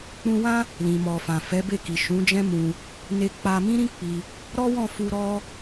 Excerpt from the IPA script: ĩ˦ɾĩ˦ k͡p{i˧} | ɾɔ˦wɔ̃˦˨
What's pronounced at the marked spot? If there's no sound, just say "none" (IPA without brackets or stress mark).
i˧